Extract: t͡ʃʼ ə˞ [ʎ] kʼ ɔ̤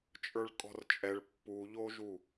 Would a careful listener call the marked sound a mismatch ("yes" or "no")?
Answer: yes